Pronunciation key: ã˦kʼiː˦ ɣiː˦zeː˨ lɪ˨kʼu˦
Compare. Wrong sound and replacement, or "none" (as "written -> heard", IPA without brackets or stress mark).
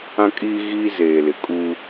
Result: none